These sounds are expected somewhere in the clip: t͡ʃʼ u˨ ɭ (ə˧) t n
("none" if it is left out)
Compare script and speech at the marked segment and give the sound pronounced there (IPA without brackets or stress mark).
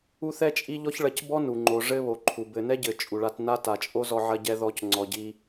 a˧